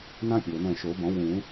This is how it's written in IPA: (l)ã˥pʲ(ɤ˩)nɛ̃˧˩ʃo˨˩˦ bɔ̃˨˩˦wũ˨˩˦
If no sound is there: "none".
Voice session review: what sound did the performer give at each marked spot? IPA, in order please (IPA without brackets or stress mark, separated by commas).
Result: n, ɤ˩